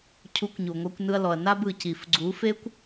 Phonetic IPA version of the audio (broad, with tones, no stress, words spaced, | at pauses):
cʰu˨˦kʷɲu˨ŋʷɛ˧kʷ nɯ˧ɐ̯lɔ˨ɐ̯na˦b ɯ˨ci˨fɡ͡ǀu˨˦fe˦kʷ